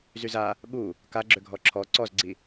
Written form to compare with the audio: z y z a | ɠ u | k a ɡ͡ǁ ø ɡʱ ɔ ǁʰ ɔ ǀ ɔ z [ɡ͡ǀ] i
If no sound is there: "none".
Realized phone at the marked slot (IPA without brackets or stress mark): ɡ͡ǀ